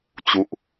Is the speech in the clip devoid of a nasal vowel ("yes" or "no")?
yes